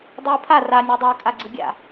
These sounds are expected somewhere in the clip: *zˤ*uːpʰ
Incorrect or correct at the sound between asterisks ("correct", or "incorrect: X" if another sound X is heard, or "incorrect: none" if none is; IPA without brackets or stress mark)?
incorrect: dˤ